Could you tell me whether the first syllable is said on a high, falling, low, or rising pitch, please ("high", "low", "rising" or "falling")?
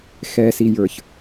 low